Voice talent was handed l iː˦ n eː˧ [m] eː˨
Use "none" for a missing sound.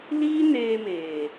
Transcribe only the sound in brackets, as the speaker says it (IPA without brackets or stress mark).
m